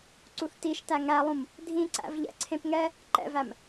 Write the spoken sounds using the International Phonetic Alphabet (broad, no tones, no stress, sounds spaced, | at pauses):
ǀ u θ t i ʃ t æ ŋ æ lˠ ũ m | dʱ ĩ ǀ æ̰ v ʎ ɛ̰ ǀʰ ẽ p ŋ ɛ | ǃ ɛ̰ v æ m